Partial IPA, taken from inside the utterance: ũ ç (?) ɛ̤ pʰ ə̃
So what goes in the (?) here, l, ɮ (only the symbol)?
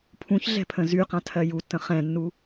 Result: ɮ